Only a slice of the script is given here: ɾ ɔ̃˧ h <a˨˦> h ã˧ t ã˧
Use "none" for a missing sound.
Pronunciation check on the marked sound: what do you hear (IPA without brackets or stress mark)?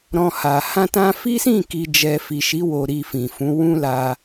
a˨